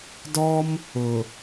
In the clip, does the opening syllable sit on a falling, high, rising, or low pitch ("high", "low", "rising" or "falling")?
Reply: high